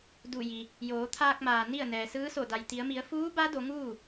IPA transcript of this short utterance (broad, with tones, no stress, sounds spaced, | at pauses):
d u˧˩ j i˩ | j oː˩˧ t̪ʰ aː˧ k̚ m aː˩ n i˥˨ ə̯ n ɛː˩ s ɯː˧˥ s o˧˩ d a˩ j t̪ i˩˧ ə̯ m i˩˧ ə̯ f uː˧˥ b a˧˥ d o˩˧ ŋ uː˥˨